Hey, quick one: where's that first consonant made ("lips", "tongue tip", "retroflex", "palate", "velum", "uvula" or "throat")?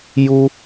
palate